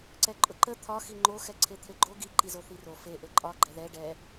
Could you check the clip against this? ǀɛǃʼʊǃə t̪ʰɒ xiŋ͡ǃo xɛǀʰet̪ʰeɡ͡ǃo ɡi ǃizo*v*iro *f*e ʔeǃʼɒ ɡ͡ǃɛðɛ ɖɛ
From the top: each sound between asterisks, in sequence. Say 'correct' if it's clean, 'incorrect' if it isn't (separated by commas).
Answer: incorrect, correct